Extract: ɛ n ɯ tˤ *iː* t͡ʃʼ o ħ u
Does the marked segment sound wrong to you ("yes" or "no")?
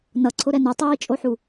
no